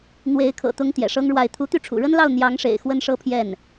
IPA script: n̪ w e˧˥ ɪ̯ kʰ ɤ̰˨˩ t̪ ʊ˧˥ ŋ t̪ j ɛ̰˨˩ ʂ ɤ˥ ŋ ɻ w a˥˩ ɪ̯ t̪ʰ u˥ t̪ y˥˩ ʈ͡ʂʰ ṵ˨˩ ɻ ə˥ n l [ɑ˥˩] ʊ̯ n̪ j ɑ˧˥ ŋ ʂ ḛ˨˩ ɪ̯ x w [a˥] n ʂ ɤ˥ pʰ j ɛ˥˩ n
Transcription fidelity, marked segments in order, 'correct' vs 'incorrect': correct, incorrect

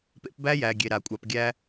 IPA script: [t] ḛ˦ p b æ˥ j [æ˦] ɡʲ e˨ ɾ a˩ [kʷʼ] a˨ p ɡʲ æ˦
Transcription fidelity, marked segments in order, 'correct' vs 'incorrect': incorrect, incorrect, correct

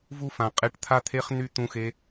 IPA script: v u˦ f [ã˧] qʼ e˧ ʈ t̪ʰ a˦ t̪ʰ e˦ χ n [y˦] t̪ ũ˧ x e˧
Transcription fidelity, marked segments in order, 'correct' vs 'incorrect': incorrect, correct

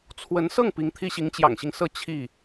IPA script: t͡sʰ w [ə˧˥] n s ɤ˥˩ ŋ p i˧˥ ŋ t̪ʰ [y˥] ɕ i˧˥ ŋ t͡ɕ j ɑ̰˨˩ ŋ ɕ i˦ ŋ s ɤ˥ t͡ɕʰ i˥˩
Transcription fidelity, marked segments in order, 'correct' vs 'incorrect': correct, incorrect

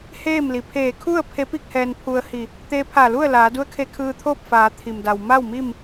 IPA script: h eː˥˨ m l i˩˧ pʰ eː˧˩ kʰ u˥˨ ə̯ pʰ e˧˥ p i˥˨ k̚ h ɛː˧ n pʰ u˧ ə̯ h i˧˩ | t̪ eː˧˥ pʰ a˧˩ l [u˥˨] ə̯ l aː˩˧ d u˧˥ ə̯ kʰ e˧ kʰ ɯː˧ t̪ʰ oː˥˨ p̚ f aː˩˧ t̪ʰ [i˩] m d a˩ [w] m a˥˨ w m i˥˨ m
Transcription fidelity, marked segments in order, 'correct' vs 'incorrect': correct, correct, correct

